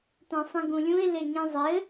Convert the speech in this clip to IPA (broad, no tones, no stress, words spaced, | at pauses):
tãsˤĩɡũlʲũɪ̯ leŋĩ zˤɘ